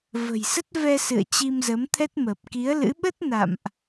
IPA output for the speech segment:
və̤˨˩jsə˦˥t̚vɛ˧ sɨ̰˧˨ə̯ t͡ɕi˧mzə˨˦mt̪ʰɛ˦˥t̚ məː˨˩p̚ki˨˦ə̯lɨ̰˧˥ ɓə˦˥t̚ na̰˧˨mʔ

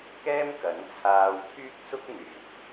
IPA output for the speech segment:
kɛː˥mkɐ˨˥nt͡sʰaː˧w t̪ʰyː˥k̚sʊ˥k̚n̪yː˨k̚

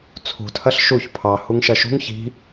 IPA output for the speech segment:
t͡sʰṳ tʰɐɬʃuç pʰɑ huŋʃɐʃṳŋ çi̤

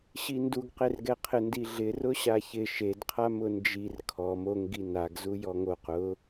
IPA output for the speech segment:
ɕinduɡqerɡɛ qʰɪndiɮɪ rʊɕaçɪ ʃedqʰa mʊnd͡ʒir kʰɔ moŋ ɡinaɡ zujɔŋoq ʊ

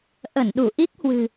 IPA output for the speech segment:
ʔə˧˩nɗu˧˩ ʔi˦˥k̚hwɨ̤˨˩

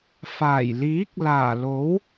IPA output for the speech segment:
faː˨˩jliː˨˥k̚ laː˨˩lo˨˥w

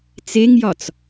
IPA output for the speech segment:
t͡seŋjɒt͡s

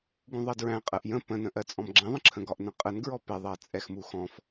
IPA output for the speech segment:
ɡũðˤɜdɹæ̃ qʼɜʔjə̃ pə̃nə̃ʔɜ t͡sʼɔ̃mɡ͡ǁɛ̃ðˤə̃ǁʰə̃ ɡɒʔnə̃qʼənɡɹɔ pɪðˤɜ t͡sʼɛxmuxɔ̃f

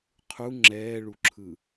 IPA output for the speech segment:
qʰu ŋ͡ǁɛːɭuǁʰɯ

